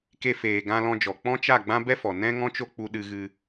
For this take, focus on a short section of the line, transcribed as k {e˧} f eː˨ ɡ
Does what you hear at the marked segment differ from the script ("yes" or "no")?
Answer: no